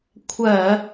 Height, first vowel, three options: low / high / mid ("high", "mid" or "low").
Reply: mid